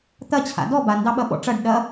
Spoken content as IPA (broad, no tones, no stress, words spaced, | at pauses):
t̪ɐ t͡ɕʰa̰dɔ bandɑɓɐ ɓɔ̰ʈ͡ʂɐɖ ɗɐ